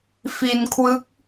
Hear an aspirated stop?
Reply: yes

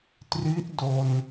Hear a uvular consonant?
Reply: no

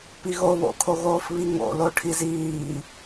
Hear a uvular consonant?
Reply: no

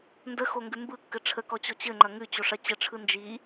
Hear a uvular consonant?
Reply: no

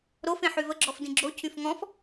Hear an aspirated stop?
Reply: yes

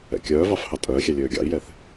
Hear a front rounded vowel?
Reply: yes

